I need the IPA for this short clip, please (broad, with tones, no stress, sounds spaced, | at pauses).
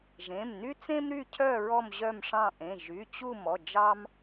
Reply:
ʒ ẽ˩˧˩ m n y˦ t͡s ẽ˦ m ɾ y˦˨ cʰ œ˦˨ ɹ ɔ˦˨ m ʑ œ˦˨ m ʂ ɑ̃˦˨ ʔ ẽ˩˧˩ ʒ y˩˧˩ t͡ɕ u˦˨ m ɔ˩˧˩ d͡ʒ ɑ˦ m